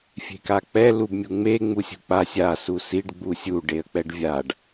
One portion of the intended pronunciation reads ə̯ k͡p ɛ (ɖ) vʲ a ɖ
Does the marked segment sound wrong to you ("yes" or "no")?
no